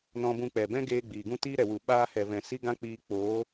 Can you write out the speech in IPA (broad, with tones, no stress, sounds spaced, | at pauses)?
n ɔ̃˧ b ũ˧ k͡p ɛ˨ b ɛ̃˦ ɡ eː˧ ɡ͡b iː˨ ɡ ũ˦ t iː˦ ɾ ɛ˨ w u˨ ɓ aː˧ h ɛ˨ v ɛ̃˨ s i˦ ɡ ã˦ k͡p iː˧ k͡p oː˨˦